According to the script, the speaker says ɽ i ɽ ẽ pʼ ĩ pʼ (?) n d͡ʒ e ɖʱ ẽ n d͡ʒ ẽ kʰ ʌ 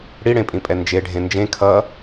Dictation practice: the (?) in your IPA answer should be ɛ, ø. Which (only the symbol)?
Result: ɛ